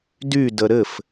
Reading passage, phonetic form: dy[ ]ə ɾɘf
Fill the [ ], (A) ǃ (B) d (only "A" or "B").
B